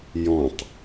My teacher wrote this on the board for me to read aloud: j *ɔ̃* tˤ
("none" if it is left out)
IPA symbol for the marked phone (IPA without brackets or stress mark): ɔ̃